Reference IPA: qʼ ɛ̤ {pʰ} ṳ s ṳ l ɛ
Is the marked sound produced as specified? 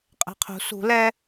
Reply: no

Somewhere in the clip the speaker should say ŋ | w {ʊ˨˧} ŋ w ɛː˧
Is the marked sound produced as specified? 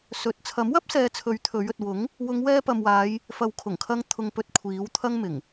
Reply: yes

